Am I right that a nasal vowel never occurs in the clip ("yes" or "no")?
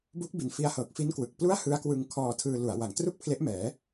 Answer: yes